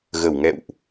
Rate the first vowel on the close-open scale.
mid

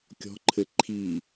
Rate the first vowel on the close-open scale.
mid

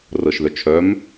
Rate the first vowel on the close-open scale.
mid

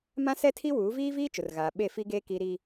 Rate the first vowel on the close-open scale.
open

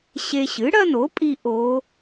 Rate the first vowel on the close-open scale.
mid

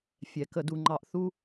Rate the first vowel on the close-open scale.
mid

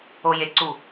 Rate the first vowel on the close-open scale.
mid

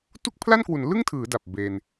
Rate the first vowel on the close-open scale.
close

